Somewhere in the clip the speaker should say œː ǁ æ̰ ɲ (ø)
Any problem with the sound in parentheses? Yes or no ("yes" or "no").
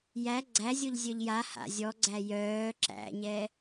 yes